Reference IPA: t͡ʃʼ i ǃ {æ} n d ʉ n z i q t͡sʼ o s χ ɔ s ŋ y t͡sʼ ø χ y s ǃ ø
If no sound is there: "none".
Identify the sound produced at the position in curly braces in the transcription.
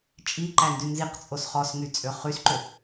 æ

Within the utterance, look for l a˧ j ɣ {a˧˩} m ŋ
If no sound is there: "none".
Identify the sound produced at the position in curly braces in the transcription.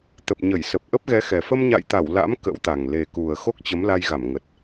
a˧˩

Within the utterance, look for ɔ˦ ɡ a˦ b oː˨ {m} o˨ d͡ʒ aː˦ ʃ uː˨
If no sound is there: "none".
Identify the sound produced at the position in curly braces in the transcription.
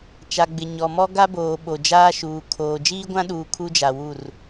ɓ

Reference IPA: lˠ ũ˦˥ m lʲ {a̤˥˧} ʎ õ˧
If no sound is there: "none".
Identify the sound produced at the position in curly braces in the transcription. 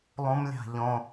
a̤˥˧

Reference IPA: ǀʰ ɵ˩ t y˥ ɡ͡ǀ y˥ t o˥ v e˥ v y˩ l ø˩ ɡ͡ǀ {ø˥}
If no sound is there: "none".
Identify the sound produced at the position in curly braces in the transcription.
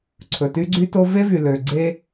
e˥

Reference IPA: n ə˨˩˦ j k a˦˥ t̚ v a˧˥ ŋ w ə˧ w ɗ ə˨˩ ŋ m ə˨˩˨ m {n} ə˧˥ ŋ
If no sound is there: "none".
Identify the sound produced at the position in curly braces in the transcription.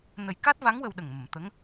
t̪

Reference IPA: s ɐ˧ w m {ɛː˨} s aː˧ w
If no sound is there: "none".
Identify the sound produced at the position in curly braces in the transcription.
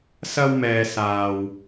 ɛː˨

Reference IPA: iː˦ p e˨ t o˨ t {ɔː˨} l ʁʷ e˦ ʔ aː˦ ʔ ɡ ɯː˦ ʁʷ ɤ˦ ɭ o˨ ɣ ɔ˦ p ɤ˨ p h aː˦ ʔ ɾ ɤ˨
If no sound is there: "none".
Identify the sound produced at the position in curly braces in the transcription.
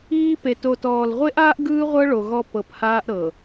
ɔː˨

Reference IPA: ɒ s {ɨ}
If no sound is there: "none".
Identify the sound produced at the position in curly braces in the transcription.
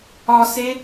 e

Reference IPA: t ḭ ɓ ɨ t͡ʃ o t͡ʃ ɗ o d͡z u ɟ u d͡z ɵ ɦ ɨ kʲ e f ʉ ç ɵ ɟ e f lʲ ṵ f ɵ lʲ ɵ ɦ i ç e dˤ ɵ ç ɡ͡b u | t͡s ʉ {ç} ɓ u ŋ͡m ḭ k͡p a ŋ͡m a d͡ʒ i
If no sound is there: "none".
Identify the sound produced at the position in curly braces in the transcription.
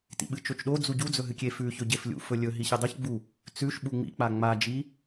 ʃ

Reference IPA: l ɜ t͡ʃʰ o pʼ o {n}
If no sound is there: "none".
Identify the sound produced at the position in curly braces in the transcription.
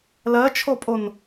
n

